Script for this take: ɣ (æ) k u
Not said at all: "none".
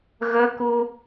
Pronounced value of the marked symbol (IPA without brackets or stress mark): ə